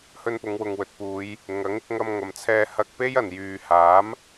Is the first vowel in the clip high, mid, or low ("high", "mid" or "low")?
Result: mid